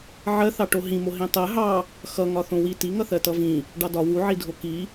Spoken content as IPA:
ʕɜθɑʈo ɦĩmo ɦĩtˤɜ ɦɑ | xʌ ŋɒθõwi tiŋʌ θɜtʌvĩ | ɖɑdɒ wuʕidʱo ki

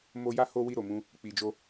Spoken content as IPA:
mo˧ja˦ ho˦ wi˦˨ɾo˨mũ˧ | k͡pi˨d͡ʒo˧

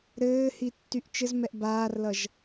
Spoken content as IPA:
ɾɘːhi tːyʔt͡ʃɘzmɛʔ baːrlʌʒ

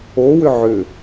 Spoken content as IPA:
owʏ ʕʏ

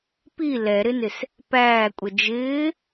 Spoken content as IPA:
pi lɛɾɪnɪs | pæːkʷʼə d͡ʒɪː

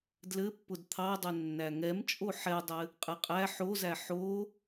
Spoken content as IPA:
dlɘpːʊd t̪ʰɑdˤɛ nːæŋɛmt͡ʃʼo ħɛdˤɘ | qʼɘqʼæ ħozæ ħo

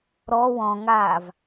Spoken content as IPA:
ɾɔ wɔ̃ŋaːv

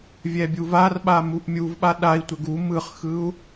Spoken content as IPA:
vʲɛbʲuvarɓa muʔmʲuvɓa ɗai̯tʷɛɡ u mɯχxɯu̯

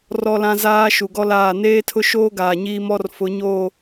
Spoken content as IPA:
rɔ˦lã˦zaː˦ ʃu˨ɡɔ˦laː˦˨ neː˦tʰʊ˦ʃoː˦ ɡaː˨ɲiː˦mɔ˦r fʊ˨˦ɲoː˦˨

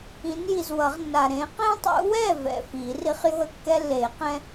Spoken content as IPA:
ĩ˨˦nji˨z wʌ˨˩˦ʁnːa˨ ɾẽ˨˦qẽ˦tˤṵ˨˦wɛ˥˩ vɛ̰˨fi˨˩˦ri˦χ jo̤˥˩ə̯kːɛ˦lːe˨˩˦qɛ̃˦

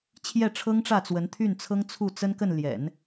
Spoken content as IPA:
t͡ɕʰjɛ˥˩ʈ͡ʂʰɤ˥ŋʈ͡ʂä˥˩ t͡swə˧˥nt̪ʰy˥˩nt͡sʰɤ˥ŋ t͡sʰu˥˩t͡sə˥nkə˥˩n ljɛ̰˨˩˦n

